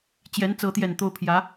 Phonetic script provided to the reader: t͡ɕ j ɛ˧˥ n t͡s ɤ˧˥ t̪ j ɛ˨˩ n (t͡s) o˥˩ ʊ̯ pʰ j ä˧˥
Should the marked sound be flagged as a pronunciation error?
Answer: yes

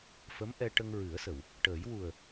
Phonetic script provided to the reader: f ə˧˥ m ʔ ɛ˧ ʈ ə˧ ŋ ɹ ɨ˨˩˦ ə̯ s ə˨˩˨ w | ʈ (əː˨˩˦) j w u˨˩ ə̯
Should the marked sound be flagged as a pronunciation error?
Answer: no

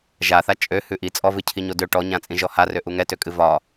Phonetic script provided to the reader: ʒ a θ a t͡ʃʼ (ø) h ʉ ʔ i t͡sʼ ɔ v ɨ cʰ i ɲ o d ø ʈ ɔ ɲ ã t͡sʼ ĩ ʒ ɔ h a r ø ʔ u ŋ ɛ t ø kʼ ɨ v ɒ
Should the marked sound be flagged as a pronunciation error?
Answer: no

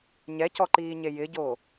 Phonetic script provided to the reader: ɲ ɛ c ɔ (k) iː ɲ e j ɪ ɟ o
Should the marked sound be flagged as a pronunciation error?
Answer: yes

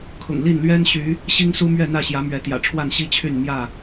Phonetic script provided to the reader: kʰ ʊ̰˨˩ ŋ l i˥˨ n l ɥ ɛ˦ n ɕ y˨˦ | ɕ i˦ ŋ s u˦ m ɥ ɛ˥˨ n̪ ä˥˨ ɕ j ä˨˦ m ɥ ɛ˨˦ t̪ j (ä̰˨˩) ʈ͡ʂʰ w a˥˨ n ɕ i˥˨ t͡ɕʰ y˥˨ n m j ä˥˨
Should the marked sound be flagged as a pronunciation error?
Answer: no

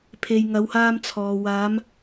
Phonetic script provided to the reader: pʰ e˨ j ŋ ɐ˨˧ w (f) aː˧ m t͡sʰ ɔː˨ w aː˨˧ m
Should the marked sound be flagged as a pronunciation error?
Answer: yes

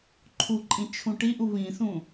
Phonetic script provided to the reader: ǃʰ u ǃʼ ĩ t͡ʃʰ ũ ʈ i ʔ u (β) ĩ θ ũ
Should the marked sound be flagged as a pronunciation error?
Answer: no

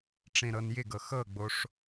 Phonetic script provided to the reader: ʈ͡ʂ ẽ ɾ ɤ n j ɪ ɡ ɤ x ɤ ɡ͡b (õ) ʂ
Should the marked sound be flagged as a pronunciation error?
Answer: yes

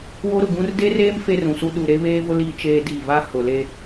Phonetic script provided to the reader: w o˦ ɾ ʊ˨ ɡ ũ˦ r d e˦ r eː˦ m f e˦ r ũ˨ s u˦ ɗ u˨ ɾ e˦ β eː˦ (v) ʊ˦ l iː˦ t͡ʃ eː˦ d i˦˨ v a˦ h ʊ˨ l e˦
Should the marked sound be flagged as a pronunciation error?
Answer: no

